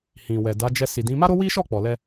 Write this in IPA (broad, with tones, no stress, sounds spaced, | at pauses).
h ĩ˨ w ɛ˨ d a˨˦ d͡ʒ ɛ˧ s i˨ d ĩ˨˦ m a˦ ɾ o˦ w i˦ ʃ ɔ˦˨ k͡p ɔ˨ l ɛ˧